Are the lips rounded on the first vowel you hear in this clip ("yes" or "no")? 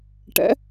no